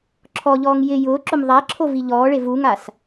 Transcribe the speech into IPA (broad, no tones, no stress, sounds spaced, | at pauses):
ǁʰ ɔ ʎ ɔː ŋ j ɪ j ʊː ǁ ʊ m ðˤ a ǁʰ o v i ʎ ɔː ɭ e v u ŋ a s